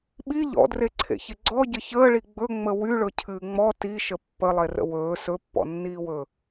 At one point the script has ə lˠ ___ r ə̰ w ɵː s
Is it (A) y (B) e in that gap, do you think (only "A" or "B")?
B